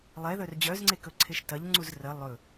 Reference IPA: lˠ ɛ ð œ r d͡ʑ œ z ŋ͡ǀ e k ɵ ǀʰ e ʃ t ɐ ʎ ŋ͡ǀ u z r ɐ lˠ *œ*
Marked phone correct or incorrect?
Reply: incorrect